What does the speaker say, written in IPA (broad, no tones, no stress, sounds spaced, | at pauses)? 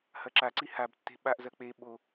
h ɐ ǁ a ǀ i h a b tː e̤ ɓ a ʔ z ɐ k͡p e ɓ o